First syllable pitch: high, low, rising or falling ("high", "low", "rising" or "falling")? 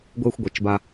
high